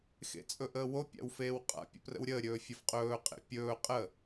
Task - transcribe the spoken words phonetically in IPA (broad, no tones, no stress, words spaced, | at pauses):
xḛt͡sʼɵʔəːwo pʲa̰wfeːwqʼa̰ pʲə̰prə̰wɾʲəː ɾʲɵːfʲɐfqʼɵː qʼḛpʲɵː qʼə